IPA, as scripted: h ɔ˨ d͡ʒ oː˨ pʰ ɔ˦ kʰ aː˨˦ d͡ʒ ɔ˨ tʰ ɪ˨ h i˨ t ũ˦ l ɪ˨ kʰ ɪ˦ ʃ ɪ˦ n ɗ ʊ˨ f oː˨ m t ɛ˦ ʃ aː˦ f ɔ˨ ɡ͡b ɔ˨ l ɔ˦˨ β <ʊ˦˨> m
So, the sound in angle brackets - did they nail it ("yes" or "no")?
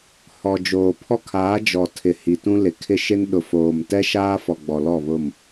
yes